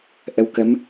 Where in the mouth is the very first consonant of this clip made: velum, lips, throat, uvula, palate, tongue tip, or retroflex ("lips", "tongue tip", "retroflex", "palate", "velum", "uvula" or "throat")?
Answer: throat